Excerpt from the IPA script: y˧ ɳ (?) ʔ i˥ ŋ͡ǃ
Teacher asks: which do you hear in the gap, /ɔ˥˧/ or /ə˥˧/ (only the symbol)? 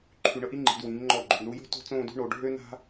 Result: ə˥˧